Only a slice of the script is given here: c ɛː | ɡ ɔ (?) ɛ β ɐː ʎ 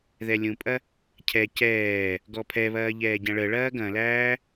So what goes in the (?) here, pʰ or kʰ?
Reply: pʰ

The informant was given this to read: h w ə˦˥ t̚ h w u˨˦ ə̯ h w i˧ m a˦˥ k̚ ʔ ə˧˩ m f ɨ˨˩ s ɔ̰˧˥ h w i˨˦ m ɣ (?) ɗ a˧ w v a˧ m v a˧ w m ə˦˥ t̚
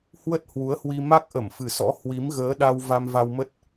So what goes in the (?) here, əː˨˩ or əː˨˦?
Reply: əː˨˦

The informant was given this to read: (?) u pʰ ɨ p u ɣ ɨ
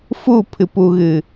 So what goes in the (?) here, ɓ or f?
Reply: f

